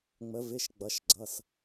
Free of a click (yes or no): no